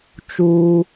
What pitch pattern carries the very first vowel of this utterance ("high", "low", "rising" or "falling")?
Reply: high